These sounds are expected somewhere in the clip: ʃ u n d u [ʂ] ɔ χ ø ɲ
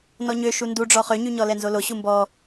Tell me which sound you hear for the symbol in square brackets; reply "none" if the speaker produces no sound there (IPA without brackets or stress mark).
ɖ͡ʐ